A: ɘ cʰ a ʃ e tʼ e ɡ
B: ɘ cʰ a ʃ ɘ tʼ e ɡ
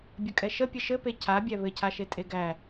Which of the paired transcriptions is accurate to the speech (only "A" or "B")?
A